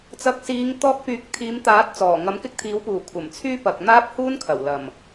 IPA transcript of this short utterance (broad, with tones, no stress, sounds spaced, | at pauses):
t͡s ɐ˨˥ k̚ s iː˨˧ ŋ t̪ ɔː˧ k̚ p yː˨˥ k̚ t̪ʰ iː˨˧ m t̪ aː˨˥ t̚ t͡s ɔː˨˩ ŋ ɐ˨˥ m k ɪ˥ k̚ t̪ʰ iː˨˥ w p uː˨˩ kʷʰ ɐ˨˩ m t͡sʰ yː˥ p ɐ˨ k̚ n̪ aː˥ p̚ h uː˥ n kʰ ɐ˨˩ w l ɐ˨˩ m